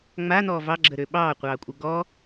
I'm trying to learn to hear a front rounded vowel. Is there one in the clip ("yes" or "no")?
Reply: yes